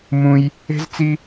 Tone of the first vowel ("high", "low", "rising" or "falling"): high